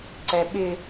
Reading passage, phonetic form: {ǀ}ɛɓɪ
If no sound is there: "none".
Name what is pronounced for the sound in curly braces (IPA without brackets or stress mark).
ǀ